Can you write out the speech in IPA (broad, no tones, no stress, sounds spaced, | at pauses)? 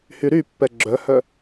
h y ɾ y pː ɛ ɡ͡ǁ œ h œ